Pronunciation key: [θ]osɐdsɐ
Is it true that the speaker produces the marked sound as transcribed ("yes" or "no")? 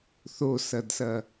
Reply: yes